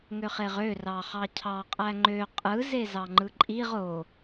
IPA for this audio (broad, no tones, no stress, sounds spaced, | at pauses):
ŋ ø χ e ʁ ø r ɑ χ ɑ cʰ ɑ qʼ æ ŋ͡ǃ ø qʼ ɯ z e z ɑ ŋ͡ǃ ɯ ǃʼ i ʁ o